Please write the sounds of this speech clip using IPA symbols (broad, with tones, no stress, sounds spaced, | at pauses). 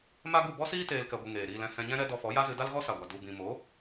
m a˦ ɡ u˦˨ b ɔ˦ s iː˦ t eː˨ l k ɛ˨ ɡʷ ɨ˨ ŋ eː˨ ɾ iː˧ l ɛ̃˧ h ɛ̃˧ ɲ ɛ̃˦ ɾ ɛ˦ d ɔ˧ f ɔ˨˦ j a˦ z ɨ˧ d a˦ l ɣ ɔ˦ s a˨ ɡʷ a˨ d u˨ b ĩ˨ m o˨˦